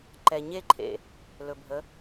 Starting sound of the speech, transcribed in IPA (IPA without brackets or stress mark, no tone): ǃ